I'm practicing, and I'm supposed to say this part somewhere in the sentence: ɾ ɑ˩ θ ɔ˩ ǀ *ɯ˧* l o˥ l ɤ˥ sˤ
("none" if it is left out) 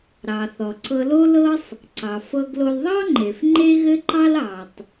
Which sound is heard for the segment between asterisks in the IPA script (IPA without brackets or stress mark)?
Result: ɤ˧